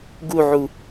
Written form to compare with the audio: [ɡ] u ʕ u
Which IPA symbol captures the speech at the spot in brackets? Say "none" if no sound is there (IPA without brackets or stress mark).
ɡ